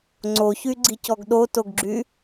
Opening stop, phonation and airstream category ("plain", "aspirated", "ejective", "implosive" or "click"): click